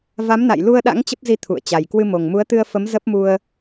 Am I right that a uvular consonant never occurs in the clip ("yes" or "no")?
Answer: yes